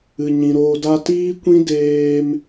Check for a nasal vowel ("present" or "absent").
present